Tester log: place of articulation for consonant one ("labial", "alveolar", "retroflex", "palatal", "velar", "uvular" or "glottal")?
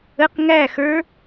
uvular